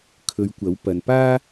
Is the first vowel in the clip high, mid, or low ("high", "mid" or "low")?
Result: mid